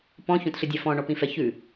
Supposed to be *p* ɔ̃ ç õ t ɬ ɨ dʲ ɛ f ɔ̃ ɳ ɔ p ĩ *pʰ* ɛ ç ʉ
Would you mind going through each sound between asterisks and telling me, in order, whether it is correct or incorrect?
correct, incorrect: f

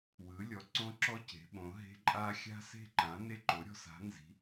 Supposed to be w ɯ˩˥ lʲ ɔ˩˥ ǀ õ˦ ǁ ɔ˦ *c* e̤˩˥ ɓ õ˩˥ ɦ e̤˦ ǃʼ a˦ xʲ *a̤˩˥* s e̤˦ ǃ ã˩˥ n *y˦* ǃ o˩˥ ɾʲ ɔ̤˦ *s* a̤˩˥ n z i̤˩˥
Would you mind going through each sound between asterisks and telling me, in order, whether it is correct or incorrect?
correct, incorrect: a̤˦, incorrect: e˦, correct

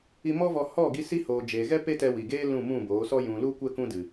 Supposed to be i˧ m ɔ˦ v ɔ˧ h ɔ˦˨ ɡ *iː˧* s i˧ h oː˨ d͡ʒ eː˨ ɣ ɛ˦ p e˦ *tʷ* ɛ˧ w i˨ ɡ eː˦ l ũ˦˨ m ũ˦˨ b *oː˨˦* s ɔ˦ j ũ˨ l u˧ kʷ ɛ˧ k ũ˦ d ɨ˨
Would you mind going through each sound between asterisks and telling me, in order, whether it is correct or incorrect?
incorrect: i˧, incorrect: t, correct

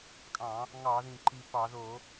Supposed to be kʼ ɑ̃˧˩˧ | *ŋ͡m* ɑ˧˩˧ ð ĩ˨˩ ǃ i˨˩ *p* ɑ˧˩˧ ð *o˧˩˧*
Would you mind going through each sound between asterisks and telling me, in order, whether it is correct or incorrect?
incorrect: ŋ, correct, correct

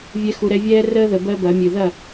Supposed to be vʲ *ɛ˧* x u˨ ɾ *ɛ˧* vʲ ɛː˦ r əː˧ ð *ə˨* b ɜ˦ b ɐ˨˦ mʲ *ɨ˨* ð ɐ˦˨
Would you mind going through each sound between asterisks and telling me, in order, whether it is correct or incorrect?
correct, correct, correct, correct

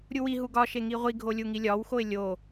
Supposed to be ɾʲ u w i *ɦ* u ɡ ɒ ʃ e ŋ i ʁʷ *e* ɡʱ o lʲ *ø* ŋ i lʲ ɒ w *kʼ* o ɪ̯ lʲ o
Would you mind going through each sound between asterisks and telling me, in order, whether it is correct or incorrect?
correct, incorrect: i, incorrect: u, incorrect: x

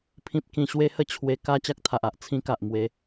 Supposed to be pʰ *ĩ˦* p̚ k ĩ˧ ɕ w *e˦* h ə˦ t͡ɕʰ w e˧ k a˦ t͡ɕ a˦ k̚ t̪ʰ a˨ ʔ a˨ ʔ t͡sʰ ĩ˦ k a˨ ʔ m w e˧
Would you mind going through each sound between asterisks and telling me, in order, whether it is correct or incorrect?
correct, correct

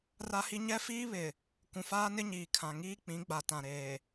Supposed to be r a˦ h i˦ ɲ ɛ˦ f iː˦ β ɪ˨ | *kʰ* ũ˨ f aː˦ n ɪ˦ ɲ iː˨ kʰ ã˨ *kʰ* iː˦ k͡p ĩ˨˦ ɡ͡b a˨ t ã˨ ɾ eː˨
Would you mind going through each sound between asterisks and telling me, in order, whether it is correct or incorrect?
incorrect: k, incorrect: ŋ

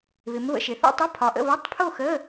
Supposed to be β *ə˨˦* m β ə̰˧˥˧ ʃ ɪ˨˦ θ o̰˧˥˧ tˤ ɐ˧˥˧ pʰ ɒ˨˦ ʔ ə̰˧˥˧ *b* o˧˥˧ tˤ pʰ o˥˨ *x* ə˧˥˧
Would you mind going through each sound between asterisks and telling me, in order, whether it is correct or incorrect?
incorrect: ɪ˨˦, incorrect: β, correct

